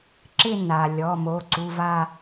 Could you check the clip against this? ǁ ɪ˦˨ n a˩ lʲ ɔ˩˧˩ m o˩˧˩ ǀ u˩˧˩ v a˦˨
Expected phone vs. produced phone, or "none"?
none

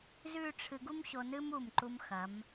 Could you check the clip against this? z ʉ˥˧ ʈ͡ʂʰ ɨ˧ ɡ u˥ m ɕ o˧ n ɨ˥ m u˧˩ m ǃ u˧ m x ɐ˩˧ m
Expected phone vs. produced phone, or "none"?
none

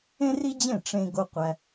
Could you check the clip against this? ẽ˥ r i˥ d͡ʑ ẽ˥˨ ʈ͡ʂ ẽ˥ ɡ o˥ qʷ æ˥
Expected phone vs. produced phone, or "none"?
none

